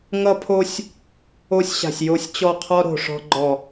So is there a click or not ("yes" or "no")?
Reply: yes